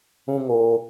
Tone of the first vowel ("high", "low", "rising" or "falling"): high